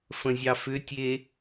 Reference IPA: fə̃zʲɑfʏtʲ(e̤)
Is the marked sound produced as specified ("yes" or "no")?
no